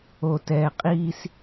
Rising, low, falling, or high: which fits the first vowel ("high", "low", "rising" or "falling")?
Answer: low